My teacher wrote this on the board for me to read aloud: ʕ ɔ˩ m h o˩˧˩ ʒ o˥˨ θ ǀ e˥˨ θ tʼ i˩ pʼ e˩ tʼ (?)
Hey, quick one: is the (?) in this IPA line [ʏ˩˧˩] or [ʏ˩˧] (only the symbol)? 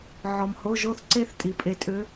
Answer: ʏ˩˧